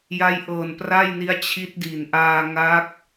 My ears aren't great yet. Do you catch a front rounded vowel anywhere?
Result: no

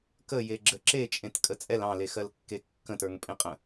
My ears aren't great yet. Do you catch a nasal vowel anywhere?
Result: yes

